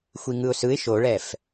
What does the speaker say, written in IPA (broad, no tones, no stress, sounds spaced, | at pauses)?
xʷ i ŋ ɯ ʊ̯ s ɯ ɪ̯ ʃ o ɭ ɛ f